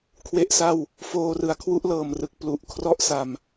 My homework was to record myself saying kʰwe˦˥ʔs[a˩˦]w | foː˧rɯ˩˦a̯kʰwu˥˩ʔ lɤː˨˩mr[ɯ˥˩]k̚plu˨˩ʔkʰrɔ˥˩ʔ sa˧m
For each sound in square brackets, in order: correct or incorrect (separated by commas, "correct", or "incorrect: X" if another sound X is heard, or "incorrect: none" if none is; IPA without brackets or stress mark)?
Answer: incorrect: a˥˩, incorrect: ɯ˨˩